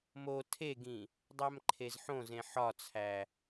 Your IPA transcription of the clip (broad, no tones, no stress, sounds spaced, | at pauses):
m o tʰ e ɡ ĩ | dˤ æ m ǃʰ e z ħ õ z ẽ ħ ɒ t͡sʰ æ